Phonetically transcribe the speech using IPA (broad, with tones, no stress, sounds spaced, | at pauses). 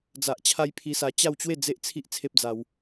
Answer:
d͡z a˨ ʔ t͡ɕʰ a˧ j pʰ i˧ s a˧ t͡ɕ a˥˧ w t͡ɕ w e˥˧ d͡z e˦ ʔ t͡sʰ i˦ ʔ t͡sʰ e˦ p̚ d͡z a˧ w